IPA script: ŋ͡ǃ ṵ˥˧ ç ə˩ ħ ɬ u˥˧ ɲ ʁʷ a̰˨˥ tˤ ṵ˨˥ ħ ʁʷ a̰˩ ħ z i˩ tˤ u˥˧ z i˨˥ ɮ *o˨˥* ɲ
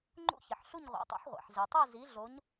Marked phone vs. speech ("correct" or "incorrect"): correct